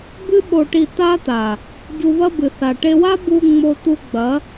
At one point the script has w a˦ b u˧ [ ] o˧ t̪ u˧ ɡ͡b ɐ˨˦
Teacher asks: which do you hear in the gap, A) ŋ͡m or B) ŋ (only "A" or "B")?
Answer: A